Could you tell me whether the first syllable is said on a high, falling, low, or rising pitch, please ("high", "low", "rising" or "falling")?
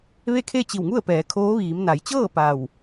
falling